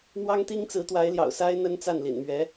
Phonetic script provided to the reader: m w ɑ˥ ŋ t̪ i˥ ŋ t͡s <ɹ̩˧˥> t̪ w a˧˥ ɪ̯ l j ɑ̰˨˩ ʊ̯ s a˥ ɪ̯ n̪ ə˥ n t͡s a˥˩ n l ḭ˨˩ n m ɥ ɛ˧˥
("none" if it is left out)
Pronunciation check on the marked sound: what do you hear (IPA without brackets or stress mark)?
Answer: ɹ̩˧˥